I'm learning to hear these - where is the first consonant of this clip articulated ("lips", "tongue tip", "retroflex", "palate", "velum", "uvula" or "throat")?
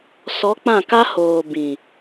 tongue tip